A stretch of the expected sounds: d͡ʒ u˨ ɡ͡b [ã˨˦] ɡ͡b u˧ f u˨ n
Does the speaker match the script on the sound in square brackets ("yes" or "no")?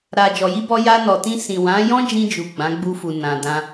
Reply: yes